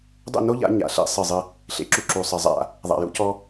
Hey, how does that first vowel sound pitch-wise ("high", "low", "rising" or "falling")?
falling